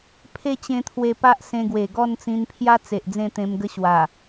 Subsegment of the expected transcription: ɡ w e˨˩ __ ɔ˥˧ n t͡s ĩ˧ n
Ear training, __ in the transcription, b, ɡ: ɡ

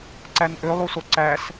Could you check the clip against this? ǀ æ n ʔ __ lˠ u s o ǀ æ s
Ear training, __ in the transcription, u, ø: ø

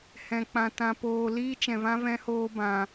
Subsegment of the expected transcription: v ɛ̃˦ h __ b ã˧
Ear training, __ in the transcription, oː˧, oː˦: oː˦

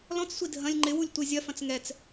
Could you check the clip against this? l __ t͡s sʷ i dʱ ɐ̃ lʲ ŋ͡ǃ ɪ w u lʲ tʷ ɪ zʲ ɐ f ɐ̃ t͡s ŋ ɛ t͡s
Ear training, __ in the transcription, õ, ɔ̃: ɔ̃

